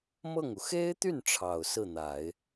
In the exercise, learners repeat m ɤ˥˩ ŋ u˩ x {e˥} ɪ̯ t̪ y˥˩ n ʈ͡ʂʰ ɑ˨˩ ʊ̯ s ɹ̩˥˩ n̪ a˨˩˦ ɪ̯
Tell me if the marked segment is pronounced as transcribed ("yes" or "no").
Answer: yes